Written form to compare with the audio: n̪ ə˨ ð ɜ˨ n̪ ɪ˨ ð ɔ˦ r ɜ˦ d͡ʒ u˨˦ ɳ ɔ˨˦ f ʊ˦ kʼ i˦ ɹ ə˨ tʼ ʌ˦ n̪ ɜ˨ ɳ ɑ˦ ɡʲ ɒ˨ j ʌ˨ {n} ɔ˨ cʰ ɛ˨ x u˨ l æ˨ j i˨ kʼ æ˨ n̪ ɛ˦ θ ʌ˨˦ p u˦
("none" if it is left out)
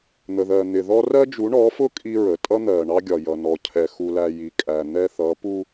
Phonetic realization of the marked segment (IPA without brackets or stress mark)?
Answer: n